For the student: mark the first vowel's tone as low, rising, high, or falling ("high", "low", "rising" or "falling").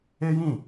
high